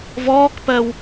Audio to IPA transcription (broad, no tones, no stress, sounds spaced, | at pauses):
v ɔː k p ɜ w